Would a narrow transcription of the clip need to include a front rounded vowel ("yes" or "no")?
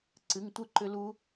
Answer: yes